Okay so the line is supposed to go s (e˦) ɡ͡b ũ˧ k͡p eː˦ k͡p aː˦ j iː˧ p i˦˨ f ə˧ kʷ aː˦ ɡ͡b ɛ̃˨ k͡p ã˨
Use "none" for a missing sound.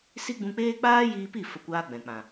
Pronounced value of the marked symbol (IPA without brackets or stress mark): i˦